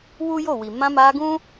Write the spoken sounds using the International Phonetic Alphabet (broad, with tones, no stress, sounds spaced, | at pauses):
w u˦ j o˦˨ w i˨ m ã˧ m a˧ ɡ ũ˦